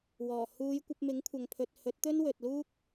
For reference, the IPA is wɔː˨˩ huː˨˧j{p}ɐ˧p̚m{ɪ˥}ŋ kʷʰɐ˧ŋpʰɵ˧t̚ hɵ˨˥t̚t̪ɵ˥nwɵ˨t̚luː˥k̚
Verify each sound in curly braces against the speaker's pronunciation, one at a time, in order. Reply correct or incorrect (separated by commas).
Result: incorrect, incorrect